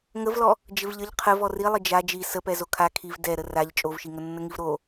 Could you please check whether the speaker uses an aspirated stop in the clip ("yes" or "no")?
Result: yes